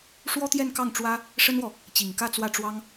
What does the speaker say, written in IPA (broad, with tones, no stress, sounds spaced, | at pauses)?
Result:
ʂ w ɔ˥ t̪ j ɛ˥˧ n k ɑ˥˩ ŋ ʈ͡ʂ w ä˥ | ʂ ə˥ n w ɔ˨ | t͡ɕ i˨˩ ŋ k ä˥˧ t͡s w ä˥˩ ʈ͡ʂ w ɑ˥ ŋ